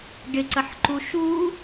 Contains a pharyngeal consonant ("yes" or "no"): yes